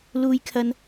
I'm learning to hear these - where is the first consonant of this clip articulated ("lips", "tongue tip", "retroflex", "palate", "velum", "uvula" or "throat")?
tongue tip